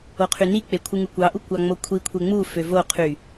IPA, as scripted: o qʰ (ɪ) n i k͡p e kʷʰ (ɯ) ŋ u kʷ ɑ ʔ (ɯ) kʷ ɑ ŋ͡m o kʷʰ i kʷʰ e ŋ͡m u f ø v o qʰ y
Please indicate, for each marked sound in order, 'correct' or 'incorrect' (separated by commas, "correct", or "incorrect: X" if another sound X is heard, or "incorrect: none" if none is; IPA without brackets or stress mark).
incorrect: y, correct, incorrect: u